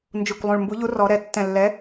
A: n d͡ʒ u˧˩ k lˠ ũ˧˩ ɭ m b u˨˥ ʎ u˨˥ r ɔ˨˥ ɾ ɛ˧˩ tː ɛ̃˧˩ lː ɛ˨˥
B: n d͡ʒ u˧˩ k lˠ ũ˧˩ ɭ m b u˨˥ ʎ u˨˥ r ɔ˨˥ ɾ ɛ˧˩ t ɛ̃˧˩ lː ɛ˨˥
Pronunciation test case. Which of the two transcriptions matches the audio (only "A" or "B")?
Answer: A